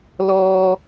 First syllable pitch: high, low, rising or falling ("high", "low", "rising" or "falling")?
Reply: high